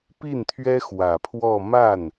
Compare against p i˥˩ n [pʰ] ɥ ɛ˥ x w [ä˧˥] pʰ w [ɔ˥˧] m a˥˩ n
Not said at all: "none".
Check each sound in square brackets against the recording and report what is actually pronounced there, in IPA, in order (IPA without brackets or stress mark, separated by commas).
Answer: t̪ʰ, ä˨˩, ɔ˥˧